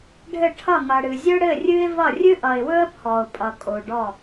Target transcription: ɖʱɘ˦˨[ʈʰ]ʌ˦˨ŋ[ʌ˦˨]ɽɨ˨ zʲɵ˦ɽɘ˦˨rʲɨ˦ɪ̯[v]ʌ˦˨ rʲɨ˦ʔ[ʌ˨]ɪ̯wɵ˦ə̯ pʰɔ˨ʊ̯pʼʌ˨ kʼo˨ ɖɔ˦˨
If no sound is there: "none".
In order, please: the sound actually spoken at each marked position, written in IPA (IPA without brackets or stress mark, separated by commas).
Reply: ʈʰ, ʌ˨, v, ʌ˨